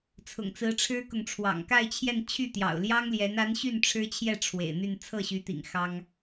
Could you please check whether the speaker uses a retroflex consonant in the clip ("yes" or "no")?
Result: yes